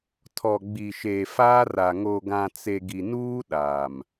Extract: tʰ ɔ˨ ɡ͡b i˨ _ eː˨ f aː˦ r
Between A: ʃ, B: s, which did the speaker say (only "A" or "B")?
A